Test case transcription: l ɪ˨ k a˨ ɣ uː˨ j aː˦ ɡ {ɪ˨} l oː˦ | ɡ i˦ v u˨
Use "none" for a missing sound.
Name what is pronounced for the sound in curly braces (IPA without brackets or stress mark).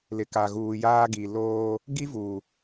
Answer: i˨